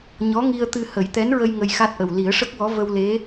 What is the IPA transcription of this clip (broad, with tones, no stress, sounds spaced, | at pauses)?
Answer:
ɲ ɔ˧˥ ŋ i˧ ə̯ t̪ ɨ˧ h ə˨˩˦ j t̪ ɛ˧˥ n ɹ ə˧ j ŋ ə˧ j x a˦˥ t̚ ʔ ə˨˩ w l i˨˩˦ ə̯ ʂ ə˦˥ k̚ w ɔ˧˥ v ə˧ w l e˧˥